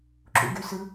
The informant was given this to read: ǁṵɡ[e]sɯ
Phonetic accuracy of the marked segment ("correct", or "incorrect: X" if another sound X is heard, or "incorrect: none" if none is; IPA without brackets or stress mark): incorrect: y